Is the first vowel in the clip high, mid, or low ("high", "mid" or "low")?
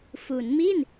high